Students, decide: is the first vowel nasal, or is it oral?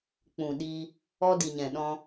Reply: nasal